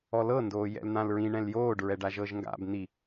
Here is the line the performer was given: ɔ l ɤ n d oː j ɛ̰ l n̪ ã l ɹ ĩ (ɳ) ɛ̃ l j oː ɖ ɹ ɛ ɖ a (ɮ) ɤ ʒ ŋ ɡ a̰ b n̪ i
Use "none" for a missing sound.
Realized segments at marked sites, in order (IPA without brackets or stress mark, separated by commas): ɳ, ʒ